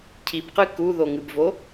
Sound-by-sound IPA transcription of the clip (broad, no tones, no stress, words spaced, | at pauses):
cʰibqɨ kuðoŋɨbvo